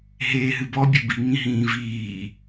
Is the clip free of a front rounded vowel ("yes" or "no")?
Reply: yes